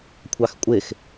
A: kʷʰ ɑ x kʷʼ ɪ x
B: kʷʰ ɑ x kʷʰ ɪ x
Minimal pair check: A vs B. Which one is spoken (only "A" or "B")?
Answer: A